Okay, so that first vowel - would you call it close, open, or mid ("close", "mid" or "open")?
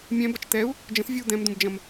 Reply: mid